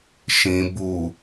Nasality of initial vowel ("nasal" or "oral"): nasal